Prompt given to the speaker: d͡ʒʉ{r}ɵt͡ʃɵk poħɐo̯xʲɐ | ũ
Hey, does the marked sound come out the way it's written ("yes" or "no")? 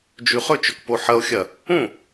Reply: no